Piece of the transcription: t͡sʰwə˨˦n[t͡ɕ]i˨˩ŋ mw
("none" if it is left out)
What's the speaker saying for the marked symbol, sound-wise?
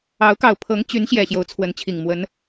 t͡ɕʰ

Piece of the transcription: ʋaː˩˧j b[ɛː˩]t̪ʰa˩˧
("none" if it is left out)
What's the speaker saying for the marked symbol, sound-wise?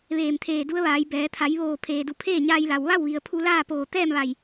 ɛː˩˧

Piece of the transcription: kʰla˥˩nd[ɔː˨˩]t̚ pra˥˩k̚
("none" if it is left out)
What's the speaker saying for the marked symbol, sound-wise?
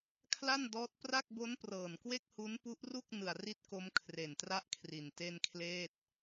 ɔː˦˥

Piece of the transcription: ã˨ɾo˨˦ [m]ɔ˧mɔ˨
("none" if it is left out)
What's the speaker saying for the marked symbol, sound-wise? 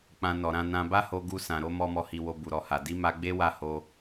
m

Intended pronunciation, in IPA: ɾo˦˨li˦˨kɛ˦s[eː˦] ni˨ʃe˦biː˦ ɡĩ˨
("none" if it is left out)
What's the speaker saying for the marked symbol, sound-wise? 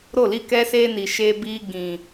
eː˦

